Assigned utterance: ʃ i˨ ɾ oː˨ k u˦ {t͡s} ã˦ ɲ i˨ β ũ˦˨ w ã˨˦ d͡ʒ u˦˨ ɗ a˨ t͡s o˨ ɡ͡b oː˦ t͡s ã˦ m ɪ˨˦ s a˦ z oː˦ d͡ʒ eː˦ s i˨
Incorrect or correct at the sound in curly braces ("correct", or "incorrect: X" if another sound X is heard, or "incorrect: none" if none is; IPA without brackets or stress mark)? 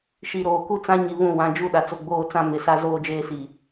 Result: correct